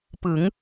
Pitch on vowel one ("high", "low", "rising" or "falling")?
rising